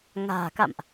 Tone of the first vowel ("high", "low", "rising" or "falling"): low